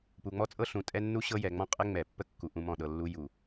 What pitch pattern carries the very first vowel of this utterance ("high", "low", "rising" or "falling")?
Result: low